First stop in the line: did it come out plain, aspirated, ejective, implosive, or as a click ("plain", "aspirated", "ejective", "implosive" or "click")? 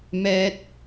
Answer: plain